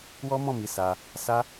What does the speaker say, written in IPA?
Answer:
wɔ˦mɔ̃˦˨mi˨˦ sa˧ | sa˦

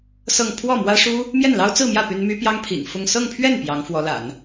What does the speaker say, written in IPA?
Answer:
sɤ˥˧ŋ pʰwɔ˥˩mwä˥ʂu˥ | mjɛ˥˩nlɑ˥ʊ̯t͡sɹ̩˥˧mjä˥˩ py˥n my˥ pjɑ˥ŋpʰḭ˨˩ŋ fʊ˥˧ŋ sɤ˥˧ŋpʰɥɛ˥˩n pjɑ˧˥ŋ fwɔ˧˥la̰˨˩˦n

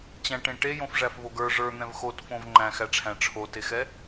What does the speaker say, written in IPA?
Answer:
t͡ɕæ̃ʈẽ ʈejõfʐæfvoɡ ə˞ ʐə˞n̪ɛ̃v xotfõv ŋ͡ǃæ̃xæʈ͡ʂʰæ̃ ʈ͡ʂʰotexɛ

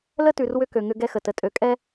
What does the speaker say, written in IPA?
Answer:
lə˦tʉ˨r wʏ˦kø˨ŋʏ˦ ɡɛ˦xə˨tə˨ tʼø˨kʼɛ˦

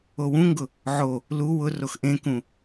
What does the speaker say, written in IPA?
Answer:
owũŋɡʊ | ʕo | lu wʊrox ʔẽkũ

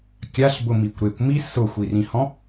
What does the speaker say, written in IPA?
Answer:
kʲaɬbʊmikʷ ɾekʷmi sʊxʷirĩhɔ̃

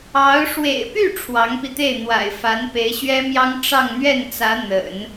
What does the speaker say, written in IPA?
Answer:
ɑ˧˥ʊ̯ ʂwḛ˨˩ɪ̯py˥˩ ʈ͡ʂʰwɑ˧˥ŋpi˧t̪e˥˩ɪ̯ n̪wa̰˨˩ɪ̯fa˧˥n pe˧˥ɪ̯ɕɥɛ˥mjɑ˥ŋ ʈ͡ʂɑ˥˧ŋn̪ɥɛ˥˩nt͡sä˧˥ n̪ə̰˨˩˦n

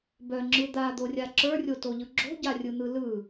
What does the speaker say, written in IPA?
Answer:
bœŋ͡ǁɯ d̪ad̪orʲa ǁə˞rʲotoʎɯ ɡ͡ǁo̤ɟarʲɯn̪ɯ lɯ

